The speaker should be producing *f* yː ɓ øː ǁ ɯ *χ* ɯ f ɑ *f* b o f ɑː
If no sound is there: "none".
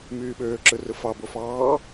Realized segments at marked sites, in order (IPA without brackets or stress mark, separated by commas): m, r, none